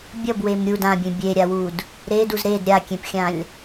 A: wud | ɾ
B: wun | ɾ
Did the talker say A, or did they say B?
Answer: A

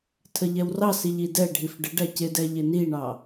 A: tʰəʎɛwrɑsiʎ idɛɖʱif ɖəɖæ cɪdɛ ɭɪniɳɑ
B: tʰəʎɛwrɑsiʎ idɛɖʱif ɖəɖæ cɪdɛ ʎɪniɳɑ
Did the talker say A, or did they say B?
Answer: B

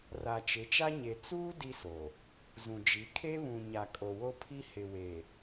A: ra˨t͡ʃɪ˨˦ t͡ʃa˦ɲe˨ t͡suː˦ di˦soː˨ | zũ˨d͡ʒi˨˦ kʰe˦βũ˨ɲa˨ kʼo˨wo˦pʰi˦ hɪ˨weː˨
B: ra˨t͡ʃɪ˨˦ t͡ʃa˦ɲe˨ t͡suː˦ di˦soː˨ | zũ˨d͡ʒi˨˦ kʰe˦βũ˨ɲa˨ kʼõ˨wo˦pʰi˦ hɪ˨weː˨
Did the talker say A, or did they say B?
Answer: A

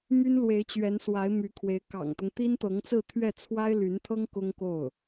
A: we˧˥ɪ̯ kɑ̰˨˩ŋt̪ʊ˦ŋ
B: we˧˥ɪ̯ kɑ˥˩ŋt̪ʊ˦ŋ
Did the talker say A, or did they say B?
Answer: A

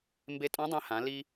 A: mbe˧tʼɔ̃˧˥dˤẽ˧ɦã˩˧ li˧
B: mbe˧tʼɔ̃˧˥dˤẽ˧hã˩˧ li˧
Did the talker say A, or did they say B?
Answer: B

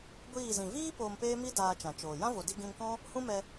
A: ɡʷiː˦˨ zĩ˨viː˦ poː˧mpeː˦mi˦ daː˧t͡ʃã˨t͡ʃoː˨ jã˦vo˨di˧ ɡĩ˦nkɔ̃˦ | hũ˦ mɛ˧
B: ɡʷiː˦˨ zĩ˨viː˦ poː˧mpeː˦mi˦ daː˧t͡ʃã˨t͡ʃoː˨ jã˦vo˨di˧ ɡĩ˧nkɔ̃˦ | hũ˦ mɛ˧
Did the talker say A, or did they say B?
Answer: B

